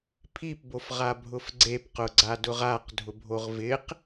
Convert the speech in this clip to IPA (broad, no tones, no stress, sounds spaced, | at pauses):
pʰ i p b o f ʁ a bʱ ʊ f ɡ͡ǀ e p q ʊ ɡ͡ǀ a d ʊ ʁ a q dʱ ʊ bʱ o ʁ v ɪ q